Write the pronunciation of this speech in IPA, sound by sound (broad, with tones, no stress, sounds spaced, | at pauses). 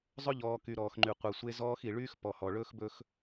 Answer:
zˤ ɵ˦ ʎ ɔː˨ k y˨ ɾ ɔː˨ x ŋ͡ǃ y˨ qʷ ɯ˨ sʷ e˦ z ɔː˦ x i˨ ɭ yː˦ x p ɔ˨ h ɔ˨ ɭ ɵː˦ x b ɵ˦ x